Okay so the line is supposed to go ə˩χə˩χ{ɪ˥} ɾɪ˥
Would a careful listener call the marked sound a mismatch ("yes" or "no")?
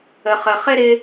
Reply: no